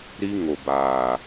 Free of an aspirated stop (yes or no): yes